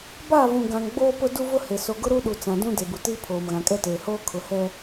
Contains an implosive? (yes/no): yes